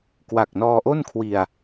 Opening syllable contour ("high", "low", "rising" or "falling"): low